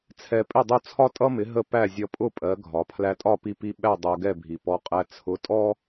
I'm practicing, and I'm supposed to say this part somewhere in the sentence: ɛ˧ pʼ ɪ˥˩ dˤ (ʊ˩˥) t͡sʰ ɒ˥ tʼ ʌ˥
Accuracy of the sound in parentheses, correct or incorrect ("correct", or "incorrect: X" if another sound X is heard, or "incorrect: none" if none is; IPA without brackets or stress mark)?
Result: incorrect: ʊ˥˩